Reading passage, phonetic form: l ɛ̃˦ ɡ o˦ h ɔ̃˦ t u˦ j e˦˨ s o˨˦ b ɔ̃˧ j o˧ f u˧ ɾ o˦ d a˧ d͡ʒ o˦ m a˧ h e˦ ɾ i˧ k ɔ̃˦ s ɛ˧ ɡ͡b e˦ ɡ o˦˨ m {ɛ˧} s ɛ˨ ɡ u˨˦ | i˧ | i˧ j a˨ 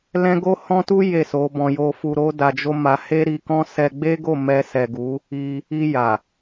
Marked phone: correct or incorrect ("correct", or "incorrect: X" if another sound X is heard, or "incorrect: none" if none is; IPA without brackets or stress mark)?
correct